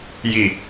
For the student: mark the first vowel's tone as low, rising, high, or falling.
low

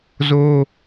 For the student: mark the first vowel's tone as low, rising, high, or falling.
high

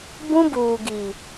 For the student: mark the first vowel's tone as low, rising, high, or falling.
high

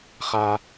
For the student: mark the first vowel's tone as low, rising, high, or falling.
high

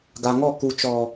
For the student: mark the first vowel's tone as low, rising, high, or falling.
low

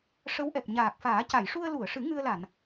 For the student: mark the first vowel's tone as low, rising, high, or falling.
rising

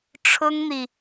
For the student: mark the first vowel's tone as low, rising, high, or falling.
high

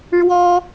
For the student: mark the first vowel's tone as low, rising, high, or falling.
high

